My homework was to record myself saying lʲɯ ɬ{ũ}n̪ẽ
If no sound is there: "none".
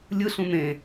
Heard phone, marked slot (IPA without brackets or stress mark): ũ